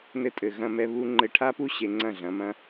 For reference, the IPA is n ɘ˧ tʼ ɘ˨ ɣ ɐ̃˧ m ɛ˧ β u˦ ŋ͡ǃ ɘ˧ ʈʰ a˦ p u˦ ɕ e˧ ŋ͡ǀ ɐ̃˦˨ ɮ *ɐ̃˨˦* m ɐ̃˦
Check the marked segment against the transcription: correct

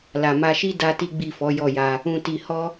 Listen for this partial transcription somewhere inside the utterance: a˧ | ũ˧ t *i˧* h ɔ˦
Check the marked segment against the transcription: correct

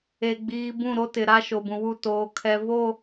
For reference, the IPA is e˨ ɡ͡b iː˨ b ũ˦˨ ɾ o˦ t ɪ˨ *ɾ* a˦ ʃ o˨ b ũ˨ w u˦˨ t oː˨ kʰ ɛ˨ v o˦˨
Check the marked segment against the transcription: correct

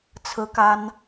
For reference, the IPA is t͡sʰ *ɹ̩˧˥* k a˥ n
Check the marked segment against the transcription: incorrect: ɹ̩˥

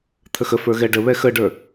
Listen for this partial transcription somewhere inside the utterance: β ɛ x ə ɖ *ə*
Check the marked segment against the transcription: incorrect: ə˞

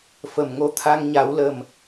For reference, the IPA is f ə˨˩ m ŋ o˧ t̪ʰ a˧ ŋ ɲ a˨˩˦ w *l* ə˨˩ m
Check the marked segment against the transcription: correct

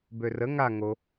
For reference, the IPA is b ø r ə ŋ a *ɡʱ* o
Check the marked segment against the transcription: incorrect: ŋ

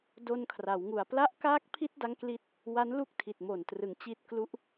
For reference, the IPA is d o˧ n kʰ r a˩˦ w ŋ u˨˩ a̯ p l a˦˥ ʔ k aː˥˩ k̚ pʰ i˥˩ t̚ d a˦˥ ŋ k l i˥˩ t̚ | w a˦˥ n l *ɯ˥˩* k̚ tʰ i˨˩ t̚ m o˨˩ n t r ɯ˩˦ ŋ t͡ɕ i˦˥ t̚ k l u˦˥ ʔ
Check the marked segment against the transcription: incorrect: u˥˩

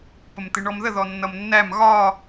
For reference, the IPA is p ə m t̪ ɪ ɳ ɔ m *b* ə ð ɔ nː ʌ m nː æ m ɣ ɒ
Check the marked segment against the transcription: incorrect: ð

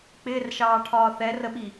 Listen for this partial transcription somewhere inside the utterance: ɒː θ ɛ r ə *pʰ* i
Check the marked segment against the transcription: incorrect: ɓ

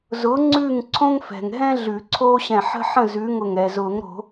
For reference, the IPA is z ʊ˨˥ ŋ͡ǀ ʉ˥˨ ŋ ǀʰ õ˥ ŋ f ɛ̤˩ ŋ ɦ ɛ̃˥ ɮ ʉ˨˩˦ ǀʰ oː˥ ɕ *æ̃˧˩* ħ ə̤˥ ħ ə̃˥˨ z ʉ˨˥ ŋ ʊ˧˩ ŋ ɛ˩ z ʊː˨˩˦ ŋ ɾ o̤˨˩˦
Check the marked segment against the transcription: incorrect: ɛ̃˧˩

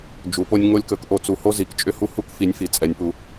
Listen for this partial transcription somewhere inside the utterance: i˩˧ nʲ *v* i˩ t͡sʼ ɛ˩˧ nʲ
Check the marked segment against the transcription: incorrect: f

